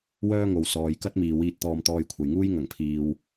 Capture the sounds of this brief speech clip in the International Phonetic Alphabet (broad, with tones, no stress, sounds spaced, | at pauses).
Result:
w œː˥ ŋ o˨ w s ɔː˨ j k ɐ˥ t̚ m iː˨ w iː˧ t̚ t̪ ɔː˧ m t̪ ɔː˧ j kʷʰ ɐ˨ j ŋ uː˥ j ŋ ɐ˨˩ ŋ pʰ iː˨ w